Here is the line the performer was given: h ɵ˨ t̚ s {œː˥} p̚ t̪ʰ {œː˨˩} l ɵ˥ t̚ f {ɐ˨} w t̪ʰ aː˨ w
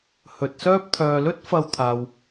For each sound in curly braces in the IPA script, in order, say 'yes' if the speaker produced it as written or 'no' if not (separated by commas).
yes, no, no